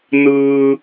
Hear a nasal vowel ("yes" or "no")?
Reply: no